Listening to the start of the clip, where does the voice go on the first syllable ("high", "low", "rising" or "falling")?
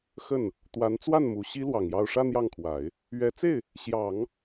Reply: falling